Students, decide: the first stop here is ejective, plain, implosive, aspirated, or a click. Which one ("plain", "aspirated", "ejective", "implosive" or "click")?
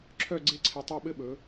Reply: click